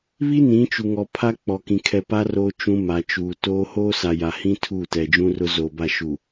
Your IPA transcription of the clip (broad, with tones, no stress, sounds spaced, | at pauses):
β i˦ n ĩ˨˦ t͡ʃ u˨ ŋ ɔ˨ pʰ a˦ k͡p ɔ˨ k ĩ˨ kʰ ɛ˨ p a˦ r o˦ t͡ʃ ũ˦ m a˨ t͡ʃ uː˨ t oː˦ h oː˦ s a˨ j a˨ h ĩ˦ tʰ uː˦˨ t ɛ˨ d͡ʒ ũ˦ r ʊ˦ z oː˨ b a˦˨ ʃ u˨